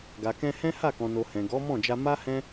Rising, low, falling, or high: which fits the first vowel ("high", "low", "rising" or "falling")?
low